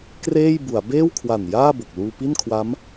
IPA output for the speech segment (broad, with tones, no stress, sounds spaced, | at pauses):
k r eː˥˩ j b u˩˦ a̯ b eː˥˩ w kʰ w a˨˩ n j aː˥˩ b o˨˩ k̚ l uː˧ p i˥˩ n kʰ w a˦˥ m